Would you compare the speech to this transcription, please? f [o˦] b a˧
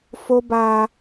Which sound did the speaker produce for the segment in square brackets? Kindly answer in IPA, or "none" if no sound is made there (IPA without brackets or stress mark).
o˦